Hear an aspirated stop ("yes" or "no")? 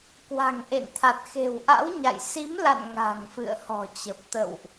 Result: yes